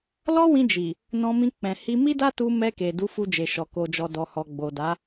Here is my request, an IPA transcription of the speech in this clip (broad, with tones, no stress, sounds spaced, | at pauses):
l ɔ˦ w ĩ˧ d͡ʒ i˨ | n ɔ̃˧ m ĩ˧ k͡p ɛ̃˨ h i˧ m i˦ d a˦ t u˧ m ɛ˧ k e˨ d u˨˦ f u˧ d͡ʒ e˨ ʃ ɔ˨ k o˨ d͡ʒ ɔ˨ d ɔ˨ h ɔ˨ ɡ͡b o˨ d a˨˦